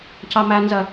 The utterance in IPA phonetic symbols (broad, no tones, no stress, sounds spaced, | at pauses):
c ɑ m æ n z ɜ